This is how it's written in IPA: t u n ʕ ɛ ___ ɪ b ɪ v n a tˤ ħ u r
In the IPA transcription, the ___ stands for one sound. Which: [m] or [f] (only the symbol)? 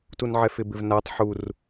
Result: f